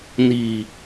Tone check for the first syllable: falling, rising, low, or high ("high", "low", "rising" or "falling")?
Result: low